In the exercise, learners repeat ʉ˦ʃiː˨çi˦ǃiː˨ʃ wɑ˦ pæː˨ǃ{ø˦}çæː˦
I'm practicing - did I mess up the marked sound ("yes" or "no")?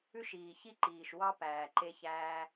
yes